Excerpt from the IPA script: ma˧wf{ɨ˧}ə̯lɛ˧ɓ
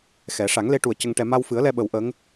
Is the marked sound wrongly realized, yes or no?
yes